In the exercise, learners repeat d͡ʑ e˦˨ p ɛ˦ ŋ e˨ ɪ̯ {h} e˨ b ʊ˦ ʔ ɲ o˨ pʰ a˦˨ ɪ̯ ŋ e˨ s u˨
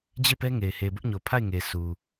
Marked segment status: correct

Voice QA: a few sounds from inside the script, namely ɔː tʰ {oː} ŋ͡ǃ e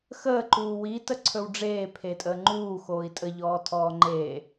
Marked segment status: incorrect: ɔː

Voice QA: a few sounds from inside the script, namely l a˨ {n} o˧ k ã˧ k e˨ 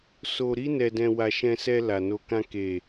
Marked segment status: correct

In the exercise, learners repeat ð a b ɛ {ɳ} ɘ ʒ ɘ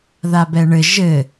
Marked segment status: correct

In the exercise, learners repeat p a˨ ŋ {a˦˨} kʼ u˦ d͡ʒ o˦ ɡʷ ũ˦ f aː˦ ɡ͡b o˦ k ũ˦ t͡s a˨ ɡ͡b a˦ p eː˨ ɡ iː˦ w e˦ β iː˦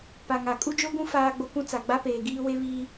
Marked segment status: incorrect: a˨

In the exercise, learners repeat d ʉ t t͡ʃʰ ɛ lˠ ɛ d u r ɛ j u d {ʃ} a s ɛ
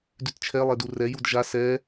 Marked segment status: incorrect: ʒ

